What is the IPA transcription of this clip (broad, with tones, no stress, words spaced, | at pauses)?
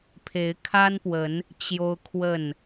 pʰe˨˦ɪ̯kʰa˦npwə˨˦n | t͡ɕjo˦ʊ̯kʰwə˥˨n